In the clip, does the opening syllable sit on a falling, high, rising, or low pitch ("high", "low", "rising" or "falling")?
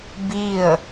falling